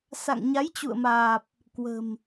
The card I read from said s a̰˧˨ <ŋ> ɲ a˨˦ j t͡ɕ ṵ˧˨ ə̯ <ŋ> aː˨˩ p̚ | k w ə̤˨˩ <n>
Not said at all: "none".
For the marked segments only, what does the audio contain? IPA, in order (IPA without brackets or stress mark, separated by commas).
ŋ, m, m